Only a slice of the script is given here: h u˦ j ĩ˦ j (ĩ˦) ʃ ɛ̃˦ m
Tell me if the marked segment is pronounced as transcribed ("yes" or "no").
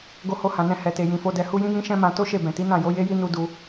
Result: yes